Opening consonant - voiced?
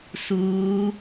no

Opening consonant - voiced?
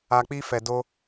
no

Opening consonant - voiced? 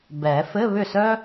yes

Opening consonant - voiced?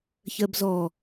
no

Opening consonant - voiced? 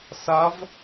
no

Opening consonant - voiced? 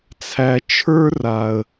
no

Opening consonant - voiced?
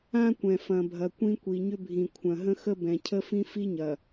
no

